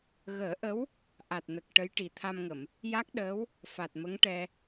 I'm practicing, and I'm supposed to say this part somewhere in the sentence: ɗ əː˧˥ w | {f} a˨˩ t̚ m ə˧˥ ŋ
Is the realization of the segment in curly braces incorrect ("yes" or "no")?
no